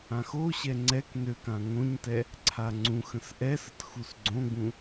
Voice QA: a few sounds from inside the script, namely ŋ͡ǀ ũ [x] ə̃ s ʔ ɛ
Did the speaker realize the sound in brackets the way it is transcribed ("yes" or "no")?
yes